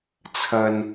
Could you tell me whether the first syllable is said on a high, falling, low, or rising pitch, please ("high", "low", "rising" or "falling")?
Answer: low